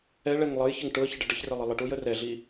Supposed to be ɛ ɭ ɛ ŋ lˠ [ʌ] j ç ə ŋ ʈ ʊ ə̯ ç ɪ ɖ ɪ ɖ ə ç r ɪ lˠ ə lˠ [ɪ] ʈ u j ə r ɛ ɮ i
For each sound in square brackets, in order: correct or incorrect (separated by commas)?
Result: correct, incorrect